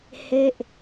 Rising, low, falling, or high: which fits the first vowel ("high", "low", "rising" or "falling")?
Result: falling